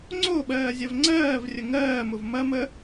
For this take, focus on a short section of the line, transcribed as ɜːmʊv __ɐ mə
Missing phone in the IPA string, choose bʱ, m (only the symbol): m